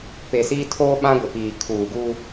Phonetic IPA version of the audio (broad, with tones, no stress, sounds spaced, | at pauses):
p e˨ s iː˦ tʰ oː˦ ɓ ã˦ ɡʷ ɪ˨ p iː˨ kʰ uː˨ ɡ u˦